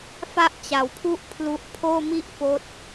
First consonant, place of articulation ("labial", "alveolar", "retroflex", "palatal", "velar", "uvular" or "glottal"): labial